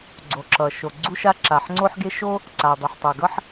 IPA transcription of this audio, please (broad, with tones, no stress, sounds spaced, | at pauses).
ɡ͡ǀ o˩ ǁ ʌ˩ ʃ o˩ ɡ͡ǀ u˥ ʃ a˥ ǁ a˩ ħ ŋ͡ǀ o˥ ħ ɡ e˥ ʃ o˥ | ǀ a˩ dˤ u˩ ħ tˤ ʌ˩ ɡ ʌ˥ ħ